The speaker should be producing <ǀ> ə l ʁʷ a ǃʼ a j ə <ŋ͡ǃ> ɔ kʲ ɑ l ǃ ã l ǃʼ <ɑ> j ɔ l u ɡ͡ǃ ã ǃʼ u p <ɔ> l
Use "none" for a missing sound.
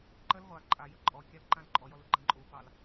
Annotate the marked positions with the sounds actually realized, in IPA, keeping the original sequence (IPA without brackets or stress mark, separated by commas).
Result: ǃ, ǃʼ, ɔ, ɑ